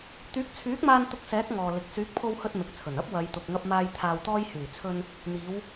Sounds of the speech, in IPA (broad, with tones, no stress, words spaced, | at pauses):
t̪yː˨˥k̚t͡sʰyː˨˥k̚maː˧n t̪ʊ˧k̚sɛː˨˥k̚ ŋɔː˨lɪ˨k̚ syː˨˥k̚pʰo˧whɵ˧t̚ mɪ˨k̚t͡sʰɵ˨˩nɐ˥p̚ wɐ˨˧jt̪ʊ˨k̚ŋɐ˧p̚maː˧j t̪ʰaː˨wt̪ɔː˧jhyː˨˩t͡sʰɵ˧n | n̪iː˨˧w